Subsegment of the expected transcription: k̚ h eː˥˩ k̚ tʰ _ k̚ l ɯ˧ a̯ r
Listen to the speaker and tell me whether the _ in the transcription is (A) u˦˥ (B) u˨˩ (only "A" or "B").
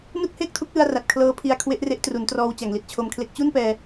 A